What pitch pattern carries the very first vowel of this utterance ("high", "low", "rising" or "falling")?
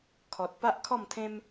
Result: low